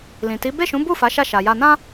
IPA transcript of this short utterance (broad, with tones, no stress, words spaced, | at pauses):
lĩ˨ti˨˦ be˦˨ʃũ˨˦bu˦˨ fa˨˦ʃa˦˨ʃa˨ja˧ nã˦